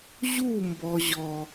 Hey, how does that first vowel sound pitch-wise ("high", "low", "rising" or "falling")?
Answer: falling